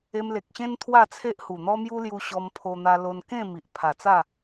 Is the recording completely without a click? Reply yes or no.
yes